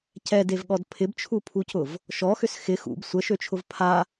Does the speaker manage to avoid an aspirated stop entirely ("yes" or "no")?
no